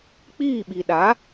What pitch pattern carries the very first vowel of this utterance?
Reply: falling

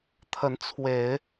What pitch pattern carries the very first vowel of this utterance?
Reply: rising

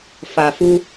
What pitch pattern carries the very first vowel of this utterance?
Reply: low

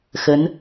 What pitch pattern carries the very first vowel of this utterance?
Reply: rising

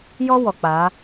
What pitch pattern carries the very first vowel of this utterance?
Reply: high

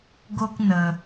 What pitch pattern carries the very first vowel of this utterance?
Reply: high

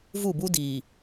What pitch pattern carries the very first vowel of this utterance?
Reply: falling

